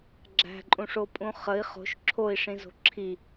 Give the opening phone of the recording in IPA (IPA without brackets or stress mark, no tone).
ɡ͡ǁ